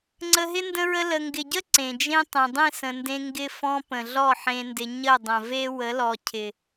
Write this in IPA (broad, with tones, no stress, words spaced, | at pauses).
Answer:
ŋ͡ǀə˧ɦɪ˦ ndə̃˧ɹə˧ lə˨ŋɡɪ˨ɟə˦ ǀẽ˨d͡ʒẽ˦ tˤẽ˨dˤẽ˦˨sə̃˨ndẽ˧ ŋɡɪ˧fɔ̃˧ pə̃˨ɮɔ˦˨ħẽ˧ndɪ˧ ɲə˦˨dˤə̃˨ve˦ wə˨˦lɔ˨cʰɪ˨